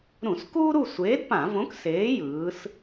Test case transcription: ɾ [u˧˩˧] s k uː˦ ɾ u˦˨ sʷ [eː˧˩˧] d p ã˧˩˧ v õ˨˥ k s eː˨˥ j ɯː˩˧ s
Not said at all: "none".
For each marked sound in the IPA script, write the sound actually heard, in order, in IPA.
ũ˧˩˧, eː˨˥

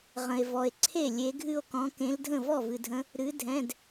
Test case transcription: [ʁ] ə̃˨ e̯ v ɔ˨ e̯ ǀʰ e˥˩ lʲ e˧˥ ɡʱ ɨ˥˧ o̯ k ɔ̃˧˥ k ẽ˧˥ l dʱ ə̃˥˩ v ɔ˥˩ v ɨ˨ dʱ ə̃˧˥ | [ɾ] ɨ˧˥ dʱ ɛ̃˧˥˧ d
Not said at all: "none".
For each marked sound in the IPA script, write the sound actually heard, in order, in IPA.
ʁ, ɾ

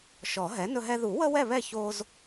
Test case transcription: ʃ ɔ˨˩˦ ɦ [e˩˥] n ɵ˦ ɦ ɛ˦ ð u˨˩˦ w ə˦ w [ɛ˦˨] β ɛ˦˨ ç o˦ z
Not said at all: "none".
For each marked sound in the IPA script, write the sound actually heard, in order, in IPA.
ɛ˩˥, ɛ˦˨

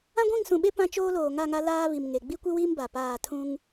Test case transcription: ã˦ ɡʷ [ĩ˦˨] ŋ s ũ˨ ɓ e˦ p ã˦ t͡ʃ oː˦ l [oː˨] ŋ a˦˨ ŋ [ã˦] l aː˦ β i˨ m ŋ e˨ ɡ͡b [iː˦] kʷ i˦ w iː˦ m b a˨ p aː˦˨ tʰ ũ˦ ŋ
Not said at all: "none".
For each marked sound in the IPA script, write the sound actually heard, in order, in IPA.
ĩ˦˨, oː˨, a˦, i˦

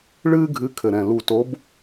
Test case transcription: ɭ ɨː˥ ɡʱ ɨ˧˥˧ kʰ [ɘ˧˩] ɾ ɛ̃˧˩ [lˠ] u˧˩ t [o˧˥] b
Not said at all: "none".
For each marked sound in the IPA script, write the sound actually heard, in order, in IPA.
ɘ˧˩, l, o˧˥

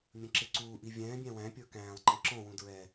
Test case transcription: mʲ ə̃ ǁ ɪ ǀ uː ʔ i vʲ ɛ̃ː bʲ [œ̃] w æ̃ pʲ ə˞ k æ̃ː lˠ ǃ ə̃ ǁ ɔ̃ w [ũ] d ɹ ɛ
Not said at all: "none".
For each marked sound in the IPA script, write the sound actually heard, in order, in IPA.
æ̃, ũ

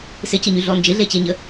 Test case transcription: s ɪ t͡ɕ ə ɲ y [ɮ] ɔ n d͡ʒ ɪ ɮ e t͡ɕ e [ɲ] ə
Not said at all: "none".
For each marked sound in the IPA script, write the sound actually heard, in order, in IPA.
ɮ, ɲ

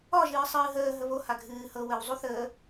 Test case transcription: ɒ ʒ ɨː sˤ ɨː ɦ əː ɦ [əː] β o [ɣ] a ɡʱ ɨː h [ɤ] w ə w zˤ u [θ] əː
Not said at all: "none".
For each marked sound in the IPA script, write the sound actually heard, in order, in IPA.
ə, h, ɤ, θ

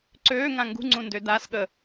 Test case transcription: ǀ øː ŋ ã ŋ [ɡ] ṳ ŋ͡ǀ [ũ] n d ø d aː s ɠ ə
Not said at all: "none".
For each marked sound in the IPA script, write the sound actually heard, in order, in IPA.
ɡ, ũ

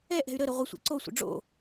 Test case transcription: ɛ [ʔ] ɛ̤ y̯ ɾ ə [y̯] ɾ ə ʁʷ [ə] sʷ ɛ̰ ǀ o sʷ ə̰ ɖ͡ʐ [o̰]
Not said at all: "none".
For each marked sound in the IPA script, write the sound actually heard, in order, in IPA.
ʔ, none, ə, o̰

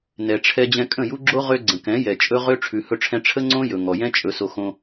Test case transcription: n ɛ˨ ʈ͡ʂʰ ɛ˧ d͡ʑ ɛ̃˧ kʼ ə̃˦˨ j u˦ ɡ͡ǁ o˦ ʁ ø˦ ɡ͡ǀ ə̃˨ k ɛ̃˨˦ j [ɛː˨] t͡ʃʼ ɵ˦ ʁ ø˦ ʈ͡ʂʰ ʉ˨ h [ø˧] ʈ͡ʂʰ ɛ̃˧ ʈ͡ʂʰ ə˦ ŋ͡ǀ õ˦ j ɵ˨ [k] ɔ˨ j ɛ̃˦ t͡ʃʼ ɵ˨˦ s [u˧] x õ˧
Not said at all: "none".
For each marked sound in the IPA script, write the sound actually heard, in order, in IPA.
ɛ˨, ɵ˧, ŋ, o˧

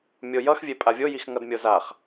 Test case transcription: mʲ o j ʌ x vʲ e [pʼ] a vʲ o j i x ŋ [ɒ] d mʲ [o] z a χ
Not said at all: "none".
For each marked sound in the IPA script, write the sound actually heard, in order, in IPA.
pʼ, ʌ, o

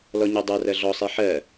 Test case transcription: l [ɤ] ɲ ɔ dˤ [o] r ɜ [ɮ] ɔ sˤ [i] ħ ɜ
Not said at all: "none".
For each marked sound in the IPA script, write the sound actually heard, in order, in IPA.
ɔ, ɤ, ɮ, e

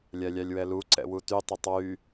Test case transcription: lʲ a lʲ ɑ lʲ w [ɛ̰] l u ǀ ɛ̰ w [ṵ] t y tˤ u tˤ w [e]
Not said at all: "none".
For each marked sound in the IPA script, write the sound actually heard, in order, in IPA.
ɛ, u, y

